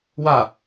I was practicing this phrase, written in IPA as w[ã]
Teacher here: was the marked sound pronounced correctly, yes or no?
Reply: no